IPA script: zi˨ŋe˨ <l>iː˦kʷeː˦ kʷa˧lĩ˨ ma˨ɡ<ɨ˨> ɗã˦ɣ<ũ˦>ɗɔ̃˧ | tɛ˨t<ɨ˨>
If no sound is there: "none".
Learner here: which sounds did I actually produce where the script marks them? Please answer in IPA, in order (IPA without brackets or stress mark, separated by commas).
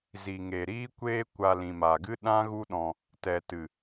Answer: ɾ, ɨ˦, u˦, ɨ˨